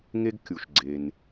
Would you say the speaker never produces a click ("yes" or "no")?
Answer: no